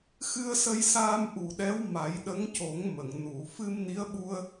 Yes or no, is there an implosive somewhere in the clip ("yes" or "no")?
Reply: yes